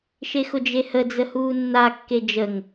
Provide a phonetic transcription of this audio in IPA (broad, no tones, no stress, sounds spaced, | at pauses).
ʃ e x ʊ d͡ʒ e h ə d͡z ə h uː nː a kː e d͡ʒ ə ŋ